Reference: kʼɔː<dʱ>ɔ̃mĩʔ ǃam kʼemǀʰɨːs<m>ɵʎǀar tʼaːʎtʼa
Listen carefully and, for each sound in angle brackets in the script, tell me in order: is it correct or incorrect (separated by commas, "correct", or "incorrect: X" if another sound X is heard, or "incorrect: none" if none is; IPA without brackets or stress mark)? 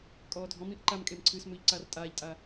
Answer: correct, correct